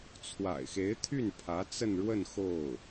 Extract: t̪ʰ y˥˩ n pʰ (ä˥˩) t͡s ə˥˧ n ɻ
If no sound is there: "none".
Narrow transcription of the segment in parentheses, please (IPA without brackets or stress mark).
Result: ä˧˥